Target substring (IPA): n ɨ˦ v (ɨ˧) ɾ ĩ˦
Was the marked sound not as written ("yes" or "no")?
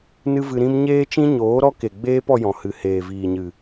no